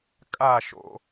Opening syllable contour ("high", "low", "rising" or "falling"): falling